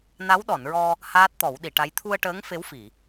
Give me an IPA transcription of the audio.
n a˧˥ w ɗ ɔ˨˩˨ n ɹ ɔ˧ | h aː˦˥ t̚ t̪ ɔ˨˩˦ w ɗ i˨˩˨ ʈ a˧˥ j t̪ʰ u˧ ə̯ ʈ əː˧˥ ŋ f e˧˥ w f i˨˩˨

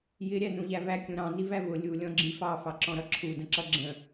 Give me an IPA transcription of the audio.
j ɪ ɾʲ æ n ũ ʎ æ v æ kʲ ũ ɾ ɑ̃ n i v æ v ʊ lʲ u lʲ ɔ̃ ɡ͡ǁ i f ɑ f ɑ ǁ ɔ̃ ɾ ʌ ǁʰ u d ə̃ ǁ ʌ ɡ͡ǁ ə̃

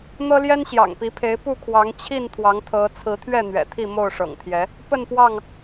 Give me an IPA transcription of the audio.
n̪ ɤ˦ l j ɛ˦ n ɕ j ɑ̰˨˩ ŋ p i˨˦ pʰ e˨˦ ɪ̯ p u˥˨ kʰ w ɑ˨˦ ŋ t͡ɕʰ i˥˨ n t̪ʰ w ɑ˨˦ ŋ t̪ʰ ɤ˨˦ t͡sʰ ɹ̩˨˦ t̪ʰ ɥ ɛ˥˨ n̪ ɥ ɛ̰˨˩ t̪ʰ i˥˨ m o˥˨ ʊ̯ ʂ ɤ̰˨˩ ŋ t̪ʰ j ɛ˨˦ | p ə˥˨ n p w ɑ˥˨ ŋ

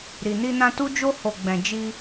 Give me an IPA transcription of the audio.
ɾ i˨ n i˧ n ã˧ t u˦ d͡ʒ o˦ h o˧ ɡ͡b ɛ̃˧ d͡ʒ i˧

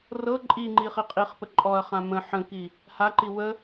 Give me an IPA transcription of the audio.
r ɤ ǃʼ i ŋ͡ǃ i χ i qʼ i χ p ə ǃʼ ɔ ɐ̯ χ ã m ə̃ ħ ə̃ k i | h a ǃ i w ə

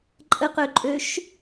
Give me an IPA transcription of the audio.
ǃʼ ə q ø ǃʼ ø ʃ

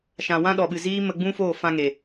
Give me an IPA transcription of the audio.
ʃ ã˨ w ã˦ ɗ ɔ˨ ɓ ɨ˨ z iː˦ m ə˧ ɡ͡b ũ˦ f oː˦˨ f ã˧ ŋ e˨

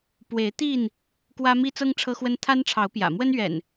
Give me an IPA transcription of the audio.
p w e˨˦ ɪ̯ t̪ i˥˨ n | k w ä˦ m i˦ t͡s ɤ˦ ŋ ʈ͡ʂʰ ɤ˦ x w ə˦ n t̪ʰ a˦ n ʈ͡ʂʰ ɑ˨˦ ʊ̯ p j ä̰˨˩ m w ə˦ n ɥ ɛ̰˨˩ n

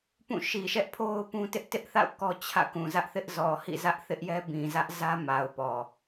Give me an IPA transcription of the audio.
p ũ˦˨ ʃ i˨ ʃ ɛ˦ ʔ pʰ o˦ ʊ̯ p ũ˦ t ɪ˦ ʔ t ɪ˦ ʔ θ a̰˦˨ ʊ̯ k ɔ˦ t͡ɕʰ ä̰˦˨ k ũ˨ z ä˦ ʔ θ ɪ˦ ʔ z ɔ˨ h ḭ˦˨ z ä˦ ʔ θ ɪ˦ ʔ j ɛ˦ b ĩ˨ z ä˦ ʔ z ä˦ m a˨ ʊ̯ p ɔ˨

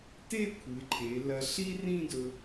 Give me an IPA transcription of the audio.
t e˥˧ kʷʰ ɨ˩˧ ǃʰ e˩˧ l ɐ˧ ɬ i˥ r ĩ˥˧ d ɵ˧

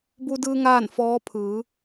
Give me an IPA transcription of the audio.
b u˧ d ɯː˧ ŋ aː˥˨ n f ɔː˧˥ pʰ ɯː˩˧

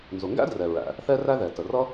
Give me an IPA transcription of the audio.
n z ʊ˩ ŋ ɡ æ̰˥ d r ɛ˩ ɹ æ̰˩ | θ ɛ˥ r æ˥ ð ɛ˩ t ə˩ r ʌ˥

